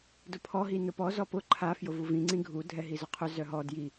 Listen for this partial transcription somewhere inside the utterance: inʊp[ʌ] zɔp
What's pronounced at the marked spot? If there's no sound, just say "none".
ɔ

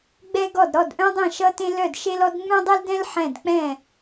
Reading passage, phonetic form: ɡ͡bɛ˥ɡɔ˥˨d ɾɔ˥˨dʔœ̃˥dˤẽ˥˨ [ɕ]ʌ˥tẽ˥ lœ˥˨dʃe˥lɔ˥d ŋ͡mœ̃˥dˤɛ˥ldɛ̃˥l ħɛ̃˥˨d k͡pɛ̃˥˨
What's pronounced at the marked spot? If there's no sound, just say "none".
ʃ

